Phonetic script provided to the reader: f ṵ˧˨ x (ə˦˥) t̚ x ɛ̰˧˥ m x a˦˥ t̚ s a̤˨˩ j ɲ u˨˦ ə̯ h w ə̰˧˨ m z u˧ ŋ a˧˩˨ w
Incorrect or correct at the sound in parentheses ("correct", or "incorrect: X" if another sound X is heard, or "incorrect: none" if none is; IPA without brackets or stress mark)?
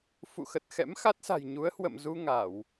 incorrect: ə˨˩